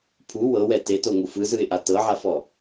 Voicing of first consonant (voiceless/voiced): voiceless